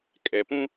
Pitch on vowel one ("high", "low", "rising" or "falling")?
low